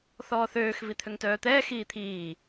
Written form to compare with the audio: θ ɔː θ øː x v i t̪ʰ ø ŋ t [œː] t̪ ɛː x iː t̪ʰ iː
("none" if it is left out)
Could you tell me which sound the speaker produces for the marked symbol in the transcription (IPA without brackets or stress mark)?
œː